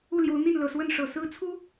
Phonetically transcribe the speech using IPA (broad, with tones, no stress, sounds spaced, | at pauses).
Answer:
u˥˩ l j o˧˥ ʊ̯ n̪ i˥˩ n l ɤ˨˩ s w ə˥˩ n ʂ ɤ˨˩ s ɹ̩˥ t͡sʰ u˥